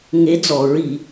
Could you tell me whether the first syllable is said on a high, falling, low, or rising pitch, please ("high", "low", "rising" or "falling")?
rising